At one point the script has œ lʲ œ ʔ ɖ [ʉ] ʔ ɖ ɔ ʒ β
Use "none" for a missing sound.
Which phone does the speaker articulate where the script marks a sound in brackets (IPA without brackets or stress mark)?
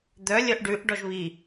ʉ